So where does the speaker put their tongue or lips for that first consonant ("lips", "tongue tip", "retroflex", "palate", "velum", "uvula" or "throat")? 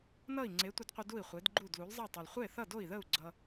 tongue tip